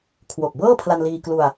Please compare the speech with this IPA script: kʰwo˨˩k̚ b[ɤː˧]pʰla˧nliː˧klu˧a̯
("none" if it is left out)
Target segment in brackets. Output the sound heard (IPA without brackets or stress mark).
ɤː˥˩